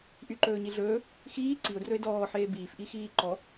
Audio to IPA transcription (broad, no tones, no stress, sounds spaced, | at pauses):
ʔ y ǃ ɵː ɲ i ɮ ɵː | x iː ǀ i ʊ̯ d r ɵ ɪ̯ d ɔː ħ eː b iː f ʔ i x iː ǃ ɔ